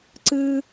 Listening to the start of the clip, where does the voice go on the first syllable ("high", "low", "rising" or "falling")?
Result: high